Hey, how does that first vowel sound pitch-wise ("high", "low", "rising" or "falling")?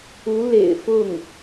rising